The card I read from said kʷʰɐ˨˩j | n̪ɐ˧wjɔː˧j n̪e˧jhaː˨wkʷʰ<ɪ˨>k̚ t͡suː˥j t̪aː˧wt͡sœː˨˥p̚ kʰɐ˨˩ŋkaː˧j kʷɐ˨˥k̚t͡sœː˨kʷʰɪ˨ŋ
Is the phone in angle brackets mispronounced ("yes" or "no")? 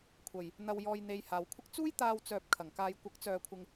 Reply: yes